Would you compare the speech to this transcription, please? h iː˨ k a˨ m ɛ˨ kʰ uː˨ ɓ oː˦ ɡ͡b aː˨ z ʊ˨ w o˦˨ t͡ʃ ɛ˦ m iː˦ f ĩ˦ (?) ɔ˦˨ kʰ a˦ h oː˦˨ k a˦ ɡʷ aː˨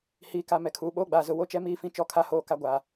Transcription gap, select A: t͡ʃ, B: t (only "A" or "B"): A